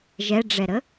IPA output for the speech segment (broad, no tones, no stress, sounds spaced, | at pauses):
ʒ ɛ ɖ͡ʐ ɛ ɾ ə